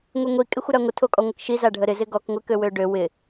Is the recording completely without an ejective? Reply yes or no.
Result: no